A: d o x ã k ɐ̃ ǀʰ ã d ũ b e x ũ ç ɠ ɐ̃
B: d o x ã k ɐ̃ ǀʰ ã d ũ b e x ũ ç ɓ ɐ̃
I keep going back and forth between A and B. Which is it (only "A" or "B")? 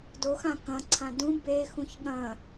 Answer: A